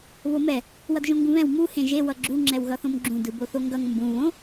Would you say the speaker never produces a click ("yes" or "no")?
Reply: no